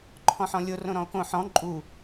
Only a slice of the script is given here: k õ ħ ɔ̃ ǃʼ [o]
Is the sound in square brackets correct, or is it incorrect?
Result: incorrect